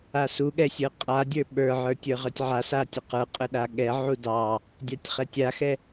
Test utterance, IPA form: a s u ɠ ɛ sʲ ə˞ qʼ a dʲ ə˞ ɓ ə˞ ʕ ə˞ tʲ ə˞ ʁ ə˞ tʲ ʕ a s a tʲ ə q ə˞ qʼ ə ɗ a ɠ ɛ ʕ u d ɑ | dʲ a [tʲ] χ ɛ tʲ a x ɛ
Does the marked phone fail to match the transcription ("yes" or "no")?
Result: no